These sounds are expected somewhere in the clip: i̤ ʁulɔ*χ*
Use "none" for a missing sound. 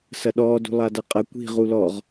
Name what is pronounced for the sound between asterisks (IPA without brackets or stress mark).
ʁ